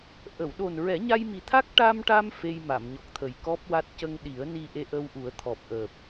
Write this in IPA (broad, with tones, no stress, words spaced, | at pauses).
ʔə˨˩˨wɗo˨˩nɹɛ˨˩˦ ɲa˧jmi˨˩t̪ʰa˦˥k̚ ʈa˧mʈa˧m fe˧jma˨˩˨mɲɔ˨˩k̚t̪ʰə˨˩j kɔ˦˥p̚wa˦˥t̚ cə˧ŋɗi˨˩˦ə̯ ni˧ʔe˧ʔə˧wʔu˨˩˦ə̯ t̪ʰɔ˨˩p̚ʔəː˨˩p̚